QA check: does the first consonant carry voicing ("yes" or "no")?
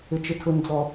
no